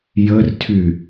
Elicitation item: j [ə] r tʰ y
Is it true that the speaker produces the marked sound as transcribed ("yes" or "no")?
yes